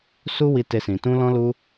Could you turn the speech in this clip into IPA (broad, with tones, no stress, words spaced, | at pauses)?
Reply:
su˦wi˧ te˦sĩ˧ tũ˦lɔ̃˦lu˦